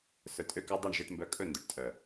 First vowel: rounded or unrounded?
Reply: rounded